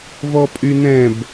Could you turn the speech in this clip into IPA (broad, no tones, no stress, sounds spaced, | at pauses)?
v ɔ pʼ y n ɛ̃ b